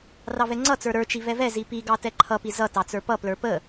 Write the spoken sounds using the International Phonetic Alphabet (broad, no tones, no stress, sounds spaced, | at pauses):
r ɑ v ɛ ŋ͡ǀ ʌ t͡s ə˞ ɾ ə˞ t͡ʃ i v ɛ v ɛ z i p i ɡ ɑ t ɛ ǃʰ ʌ p i z ʌ t ɑ t͡s ə˞ p ʌ p l ə˞ p ə